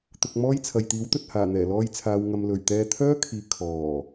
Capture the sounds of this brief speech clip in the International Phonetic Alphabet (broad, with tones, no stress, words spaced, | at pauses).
t̪ʊ˧k̚mɔː˥jt͡sʰɐ˨j t̪iː˨˥wt̪ɵ˨t̚ haː˨˩n̪ɛː˨˩lɔː˧jt͡sʰaː˨w ŋɐ˨mlɵ˨˩ɥt̪ɛː˧ t̪ʰœː˥kʰiː˨˧ kʰɔː˨˩